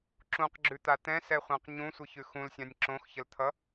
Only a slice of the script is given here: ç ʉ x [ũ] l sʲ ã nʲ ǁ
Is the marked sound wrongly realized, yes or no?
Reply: no